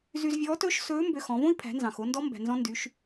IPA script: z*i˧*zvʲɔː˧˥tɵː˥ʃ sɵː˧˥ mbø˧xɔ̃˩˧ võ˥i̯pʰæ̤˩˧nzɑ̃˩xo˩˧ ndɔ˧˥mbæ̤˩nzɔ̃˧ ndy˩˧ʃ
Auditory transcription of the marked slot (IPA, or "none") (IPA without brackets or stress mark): y˧